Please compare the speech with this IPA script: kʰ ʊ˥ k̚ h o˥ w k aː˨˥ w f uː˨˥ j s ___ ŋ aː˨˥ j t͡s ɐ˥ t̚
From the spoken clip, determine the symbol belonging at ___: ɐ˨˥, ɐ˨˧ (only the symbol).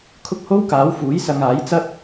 ɐ˨˧